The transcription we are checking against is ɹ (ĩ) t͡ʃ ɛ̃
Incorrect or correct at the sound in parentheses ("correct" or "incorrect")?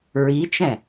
incorrect